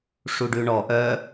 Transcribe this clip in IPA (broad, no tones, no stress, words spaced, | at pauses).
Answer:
ʂuɖʉɳɔ ʔœ